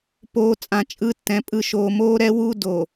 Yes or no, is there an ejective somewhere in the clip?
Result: yes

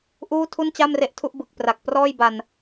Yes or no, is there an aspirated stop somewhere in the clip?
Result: yes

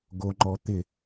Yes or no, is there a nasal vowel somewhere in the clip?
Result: no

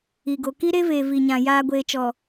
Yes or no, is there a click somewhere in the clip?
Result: no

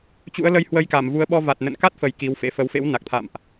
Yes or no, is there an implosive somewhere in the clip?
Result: yes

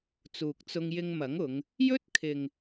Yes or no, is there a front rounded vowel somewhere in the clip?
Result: no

